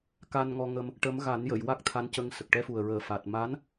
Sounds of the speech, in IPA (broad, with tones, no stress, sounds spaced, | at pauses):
k a˧ n ŋ ɔ˧ ŋ ə˧ m | ʈ ə˧˥ m ɣ a˨˩˦ n j ə˨˩˨ j w a˦˥ k̚ t̪ʰ a˧˥ n c ə˧ ŋ s ə˨˩ k̚ ʈ ɛ˧ f u˨˩ ə̯ ɹ əː˨˩ f a˨˩ t̚ m a˧˥ n